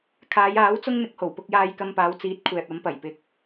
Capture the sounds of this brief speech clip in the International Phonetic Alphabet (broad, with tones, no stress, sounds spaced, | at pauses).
kʰ aː˨˧ j aː˨˥ w t͡s ʊ˥ ŋ n̪ ɪ˧ k̚ h o˨˩ w p ʊ˧ k̚ j aː˧ j k ɐ˧ m p aː˨˧ w t͡s iː˨˥ t̚ kʷʰ ɛː˨ p̚ ɐ˨˧ m p ɐ˨˩ j p ɪ˨ k̚